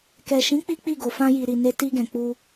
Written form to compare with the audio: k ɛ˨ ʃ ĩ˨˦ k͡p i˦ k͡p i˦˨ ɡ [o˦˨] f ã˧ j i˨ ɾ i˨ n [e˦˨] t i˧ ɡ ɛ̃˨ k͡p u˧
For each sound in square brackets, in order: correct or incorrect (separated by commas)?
incorrect, incorrect